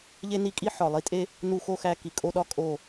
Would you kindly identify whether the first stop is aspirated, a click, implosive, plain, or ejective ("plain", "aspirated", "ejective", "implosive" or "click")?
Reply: ejective